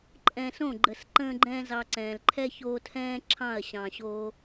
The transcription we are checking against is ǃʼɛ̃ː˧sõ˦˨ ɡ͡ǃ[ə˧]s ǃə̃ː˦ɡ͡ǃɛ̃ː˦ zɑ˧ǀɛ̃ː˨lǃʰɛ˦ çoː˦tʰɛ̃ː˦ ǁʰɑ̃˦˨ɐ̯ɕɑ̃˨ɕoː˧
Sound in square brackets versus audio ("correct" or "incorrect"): correct